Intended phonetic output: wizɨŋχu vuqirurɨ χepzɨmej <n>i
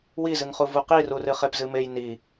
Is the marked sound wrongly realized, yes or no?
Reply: no